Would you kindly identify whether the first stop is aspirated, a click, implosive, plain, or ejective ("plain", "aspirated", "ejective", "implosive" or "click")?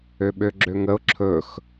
implosive